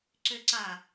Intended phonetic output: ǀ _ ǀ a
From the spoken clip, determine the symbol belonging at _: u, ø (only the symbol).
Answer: ø